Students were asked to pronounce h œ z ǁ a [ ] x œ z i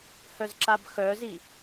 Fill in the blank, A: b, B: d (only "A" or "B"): A